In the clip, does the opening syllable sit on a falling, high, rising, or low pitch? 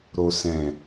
low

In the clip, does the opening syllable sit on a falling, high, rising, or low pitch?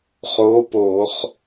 rising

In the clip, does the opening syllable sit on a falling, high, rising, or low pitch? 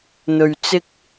low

